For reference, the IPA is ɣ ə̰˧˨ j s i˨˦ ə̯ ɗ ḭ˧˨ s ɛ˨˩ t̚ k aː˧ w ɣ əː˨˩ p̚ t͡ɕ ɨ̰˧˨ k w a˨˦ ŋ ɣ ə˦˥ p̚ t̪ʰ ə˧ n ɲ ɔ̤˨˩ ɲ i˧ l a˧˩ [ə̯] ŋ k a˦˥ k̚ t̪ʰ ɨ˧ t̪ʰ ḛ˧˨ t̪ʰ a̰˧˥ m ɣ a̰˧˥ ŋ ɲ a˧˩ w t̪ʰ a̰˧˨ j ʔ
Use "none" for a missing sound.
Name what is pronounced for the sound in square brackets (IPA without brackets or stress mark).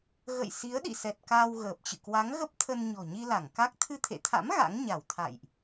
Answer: none